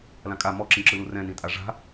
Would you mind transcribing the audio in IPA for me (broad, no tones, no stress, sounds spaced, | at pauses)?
l ã kʼ a m ɔ ǁ ĩ ǁ ɯ l u r ɛ̃ n ĩ tʼ a ʐ a̤